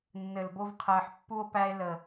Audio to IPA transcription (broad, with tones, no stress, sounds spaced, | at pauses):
nː ɘ˨ l b o˧ v qʰ ɘː˨ ħ pː u˧ o̯ p æ˧ e̯ l əː˨